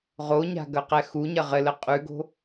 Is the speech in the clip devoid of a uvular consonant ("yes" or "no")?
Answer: no